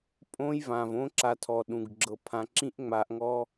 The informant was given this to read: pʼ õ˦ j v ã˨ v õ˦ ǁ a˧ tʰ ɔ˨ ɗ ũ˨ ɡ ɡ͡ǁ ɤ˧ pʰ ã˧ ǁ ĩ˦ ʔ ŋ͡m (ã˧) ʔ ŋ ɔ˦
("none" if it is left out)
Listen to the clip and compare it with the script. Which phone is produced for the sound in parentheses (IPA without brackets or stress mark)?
a˧